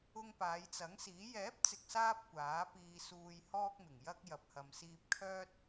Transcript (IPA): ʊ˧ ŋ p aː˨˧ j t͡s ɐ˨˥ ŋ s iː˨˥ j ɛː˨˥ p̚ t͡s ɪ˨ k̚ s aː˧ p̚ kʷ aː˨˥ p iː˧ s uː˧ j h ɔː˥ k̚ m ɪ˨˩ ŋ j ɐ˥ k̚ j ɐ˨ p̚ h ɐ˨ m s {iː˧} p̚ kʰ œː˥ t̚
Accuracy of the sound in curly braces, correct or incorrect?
correct